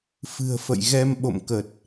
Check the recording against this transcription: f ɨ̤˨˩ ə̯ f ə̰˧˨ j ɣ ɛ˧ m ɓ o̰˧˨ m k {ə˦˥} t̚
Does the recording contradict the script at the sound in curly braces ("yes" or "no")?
yes